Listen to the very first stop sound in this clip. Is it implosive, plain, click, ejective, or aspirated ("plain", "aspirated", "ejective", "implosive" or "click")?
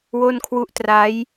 aspirated